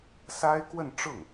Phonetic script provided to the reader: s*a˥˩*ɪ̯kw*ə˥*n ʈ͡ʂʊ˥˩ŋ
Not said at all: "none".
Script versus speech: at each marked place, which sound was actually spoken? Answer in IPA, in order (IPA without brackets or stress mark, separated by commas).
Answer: a˥, ə˥˧